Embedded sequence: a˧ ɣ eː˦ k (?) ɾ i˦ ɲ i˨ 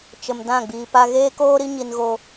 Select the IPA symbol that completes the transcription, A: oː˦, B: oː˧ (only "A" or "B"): A